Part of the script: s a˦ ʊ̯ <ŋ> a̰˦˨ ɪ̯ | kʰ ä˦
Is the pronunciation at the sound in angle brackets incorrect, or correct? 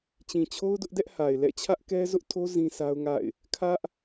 correct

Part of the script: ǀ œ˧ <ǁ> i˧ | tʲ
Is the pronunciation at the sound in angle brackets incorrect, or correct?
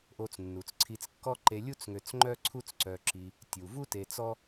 correct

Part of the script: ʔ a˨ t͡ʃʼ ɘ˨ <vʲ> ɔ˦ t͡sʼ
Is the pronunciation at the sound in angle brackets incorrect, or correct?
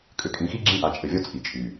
correct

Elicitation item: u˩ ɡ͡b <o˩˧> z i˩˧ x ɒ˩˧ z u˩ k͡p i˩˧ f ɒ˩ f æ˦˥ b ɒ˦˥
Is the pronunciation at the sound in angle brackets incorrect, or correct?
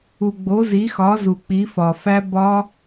correct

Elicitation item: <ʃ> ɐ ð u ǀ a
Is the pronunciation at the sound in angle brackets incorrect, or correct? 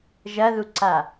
incorrect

